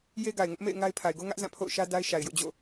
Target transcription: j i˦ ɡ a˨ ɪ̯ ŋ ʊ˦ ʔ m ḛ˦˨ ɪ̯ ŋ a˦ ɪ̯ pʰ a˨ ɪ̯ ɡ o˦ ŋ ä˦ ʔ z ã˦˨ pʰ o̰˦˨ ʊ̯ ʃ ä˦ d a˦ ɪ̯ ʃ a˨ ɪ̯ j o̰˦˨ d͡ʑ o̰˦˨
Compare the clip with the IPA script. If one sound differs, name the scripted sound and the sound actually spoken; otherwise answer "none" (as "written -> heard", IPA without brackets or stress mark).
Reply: i˦ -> e˦